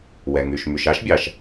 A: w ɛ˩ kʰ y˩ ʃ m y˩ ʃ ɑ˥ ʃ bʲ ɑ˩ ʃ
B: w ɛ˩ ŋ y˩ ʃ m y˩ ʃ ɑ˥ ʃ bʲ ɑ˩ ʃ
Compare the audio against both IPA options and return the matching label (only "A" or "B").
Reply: B